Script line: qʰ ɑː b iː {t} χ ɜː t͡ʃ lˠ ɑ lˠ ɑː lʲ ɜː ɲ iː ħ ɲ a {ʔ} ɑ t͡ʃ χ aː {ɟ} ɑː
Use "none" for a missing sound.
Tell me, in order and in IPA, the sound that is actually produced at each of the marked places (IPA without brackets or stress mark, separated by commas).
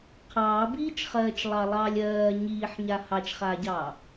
t͡ʃ, h, ɟ